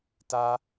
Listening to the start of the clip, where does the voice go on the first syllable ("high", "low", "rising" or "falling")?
high